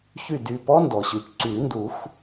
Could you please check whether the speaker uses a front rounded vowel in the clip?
yes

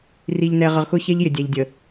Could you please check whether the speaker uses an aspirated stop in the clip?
no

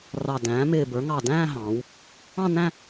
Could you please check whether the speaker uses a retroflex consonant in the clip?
no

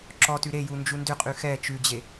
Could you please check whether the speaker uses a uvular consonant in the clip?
yes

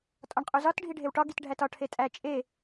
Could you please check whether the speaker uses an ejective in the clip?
yes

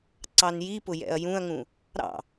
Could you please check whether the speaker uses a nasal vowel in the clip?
yes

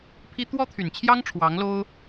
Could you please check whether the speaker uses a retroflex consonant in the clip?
yes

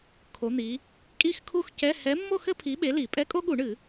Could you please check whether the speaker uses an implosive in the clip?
yes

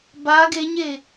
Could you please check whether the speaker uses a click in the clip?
no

